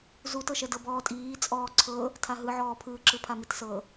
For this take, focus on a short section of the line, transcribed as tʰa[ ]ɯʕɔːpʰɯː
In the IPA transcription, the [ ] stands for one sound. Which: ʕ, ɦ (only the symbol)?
ɦ